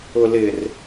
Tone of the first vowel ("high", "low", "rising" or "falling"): low